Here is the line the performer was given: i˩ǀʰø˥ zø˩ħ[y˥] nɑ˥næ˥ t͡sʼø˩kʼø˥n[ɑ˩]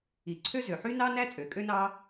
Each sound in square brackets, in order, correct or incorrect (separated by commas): correct, incorrect